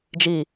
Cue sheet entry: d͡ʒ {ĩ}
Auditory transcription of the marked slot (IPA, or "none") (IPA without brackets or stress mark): i